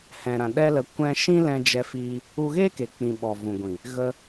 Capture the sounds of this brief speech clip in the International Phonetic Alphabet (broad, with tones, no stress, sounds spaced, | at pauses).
h ɛ̃˨ ɾ ã˨ ɗ ɛ˦ l ə˧ kʷ ɛ̃˧ ʃ ĩ˦ l ɛ̃˧ d͡ʒ ɛ˧ f iː˧ | u˧ ɣ eː˦ k e˨ k͡p ĩ˨ ɓ ɔ˨ v ũ˨ ɡʷ ĩ˨ | ɣ ə˧